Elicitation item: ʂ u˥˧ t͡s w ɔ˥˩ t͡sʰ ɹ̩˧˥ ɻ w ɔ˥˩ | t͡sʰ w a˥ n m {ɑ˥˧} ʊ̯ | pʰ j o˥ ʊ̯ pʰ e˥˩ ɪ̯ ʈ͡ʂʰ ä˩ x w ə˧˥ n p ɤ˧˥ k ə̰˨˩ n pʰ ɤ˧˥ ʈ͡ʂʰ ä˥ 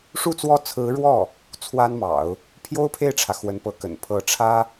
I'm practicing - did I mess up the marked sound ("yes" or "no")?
yes